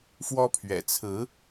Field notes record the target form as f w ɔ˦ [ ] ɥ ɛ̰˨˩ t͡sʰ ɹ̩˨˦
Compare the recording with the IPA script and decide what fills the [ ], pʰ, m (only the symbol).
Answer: pʰ